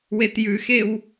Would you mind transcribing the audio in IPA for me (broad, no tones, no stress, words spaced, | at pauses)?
wetjʉxew